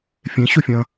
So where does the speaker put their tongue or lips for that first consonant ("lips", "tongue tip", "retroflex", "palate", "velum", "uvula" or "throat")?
lips